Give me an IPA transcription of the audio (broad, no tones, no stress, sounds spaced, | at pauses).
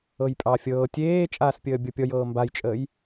ɤ j pʼ ɑ fʲ ɤː tʲ eː t͡ʃʼ aː s pʲ əː bʲ ɤ pʲ ɔ j ɤː m b a j t͡ʃʼ əː j